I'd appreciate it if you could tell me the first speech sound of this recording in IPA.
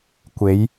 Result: kʷ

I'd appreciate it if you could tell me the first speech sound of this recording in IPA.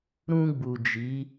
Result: ɾ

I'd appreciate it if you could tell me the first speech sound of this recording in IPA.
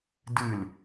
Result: d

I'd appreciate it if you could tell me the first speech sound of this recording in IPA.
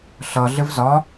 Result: ɬ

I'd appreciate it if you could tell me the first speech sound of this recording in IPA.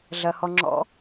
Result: ɮ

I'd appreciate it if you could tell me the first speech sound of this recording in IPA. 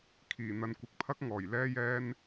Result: kʰ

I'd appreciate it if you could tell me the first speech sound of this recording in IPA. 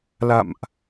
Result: l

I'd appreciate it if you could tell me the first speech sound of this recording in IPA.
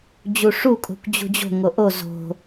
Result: d͡ʑ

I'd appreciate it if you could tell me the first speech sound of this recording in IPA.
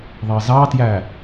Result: ðˤ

